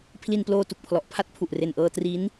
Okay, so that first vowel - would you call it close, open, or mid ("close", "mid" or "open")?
close